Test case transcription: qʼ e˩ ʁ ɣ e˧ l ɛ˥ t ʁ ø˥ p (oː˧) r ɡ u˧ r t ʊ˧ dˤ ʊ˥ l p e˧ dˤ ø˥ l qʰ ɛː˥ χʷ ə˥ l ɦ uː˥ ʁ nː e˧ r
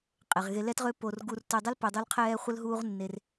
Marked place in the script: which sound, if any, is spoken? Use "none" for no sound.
o˧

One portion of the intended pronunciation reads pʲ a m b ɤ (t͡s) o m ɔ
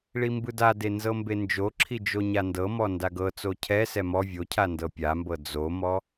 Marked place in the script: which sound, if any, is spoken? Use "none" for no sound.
d͡z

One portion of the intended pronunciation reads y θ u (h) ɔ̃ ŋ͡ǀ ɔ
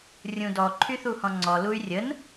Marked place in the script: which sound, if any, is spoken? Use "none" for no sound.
h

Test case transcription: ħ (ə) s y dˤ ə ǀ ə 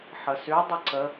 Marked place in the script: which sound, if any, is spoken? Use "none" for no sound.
ə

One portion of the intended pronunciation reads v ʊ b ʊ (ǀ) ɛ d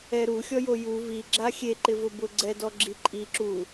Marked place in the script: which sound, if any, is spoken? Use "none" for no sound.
ɡ͡ǀ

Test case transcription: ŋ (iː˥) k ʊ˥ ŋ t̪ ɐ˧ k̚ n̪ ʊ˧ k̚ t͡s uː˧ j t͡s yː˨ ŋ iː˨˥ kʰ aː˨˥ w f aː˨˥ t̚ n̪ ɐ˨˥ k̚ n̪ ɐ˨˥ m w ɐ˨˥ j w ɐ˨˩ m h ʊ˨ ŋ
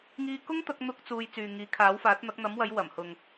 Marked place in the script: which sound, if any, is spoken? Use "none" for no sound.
iː˥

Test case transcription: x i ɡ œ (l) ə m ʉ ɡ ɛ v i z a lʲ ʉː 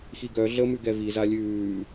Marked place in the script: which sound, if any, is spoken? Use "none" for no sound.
ɮ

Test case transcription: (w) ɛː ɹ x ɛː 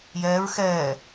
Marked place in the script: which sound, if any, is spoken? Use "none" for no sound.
j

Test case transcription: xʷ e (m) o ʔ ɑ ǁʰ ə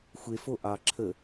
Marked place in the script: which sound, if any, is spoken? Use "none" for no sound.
f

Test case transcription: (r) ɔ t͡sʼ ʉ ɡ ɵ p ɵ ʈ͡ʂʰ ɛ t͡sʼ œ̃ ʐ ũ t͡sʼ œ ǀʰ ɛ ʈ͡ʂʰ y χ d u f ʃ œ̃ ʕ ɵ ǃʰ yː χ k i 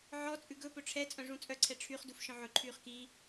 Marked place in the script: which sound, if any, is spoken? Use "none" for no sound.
ʕ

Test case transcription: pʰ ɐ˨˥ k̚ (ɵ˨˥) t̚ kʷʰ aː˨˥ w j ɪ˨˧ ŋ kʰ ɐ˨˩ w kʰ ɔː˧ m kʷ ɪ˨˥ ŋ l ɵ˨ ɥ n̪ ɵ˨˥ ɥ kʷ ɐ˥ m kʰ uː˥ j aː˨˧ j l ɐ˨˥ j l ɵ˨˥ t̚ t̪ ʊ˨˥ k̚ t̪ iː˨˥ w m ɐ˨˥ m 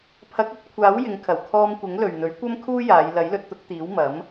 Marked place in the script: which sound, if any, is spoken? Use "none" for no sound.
ɵ˨˥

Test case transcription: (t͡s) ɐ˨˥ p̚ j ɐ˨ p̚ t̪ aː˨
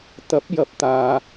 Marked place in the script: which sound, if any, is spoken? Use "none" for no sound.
t̪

